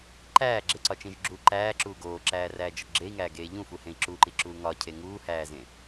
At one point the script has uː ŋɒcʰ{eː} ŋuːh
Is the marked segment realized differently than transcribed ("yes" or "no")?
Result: yes